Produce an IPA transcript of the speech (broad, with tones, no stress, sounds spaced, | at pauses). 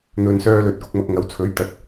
n̪ ɵ˨ n s œː˧ l ɵ˨ t̚ k ʊ˧ k̚ m ɐ˧ k̚ ŋ ɐ˨˥ w t͡sʰ ɵ˨˥ ɥ t̪ ɐ˨˥ t̚